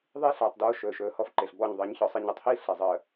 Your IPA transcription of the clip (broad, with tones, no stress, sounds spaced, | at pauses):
ðˤ iː˦ ɬ aː˨ tˤ d oː˦ ʃ ɵː˨ ʃ ɵː˨ h ɔ˦ f ǃ e˨ ɬ b ɔ˦˨ ɲ ðˤ əː˨˦ ɲ ç ɔ˨ sˤ i˨ ɲ o˨ tˤ h iː˦ ɬ e˨ zˤ əː˨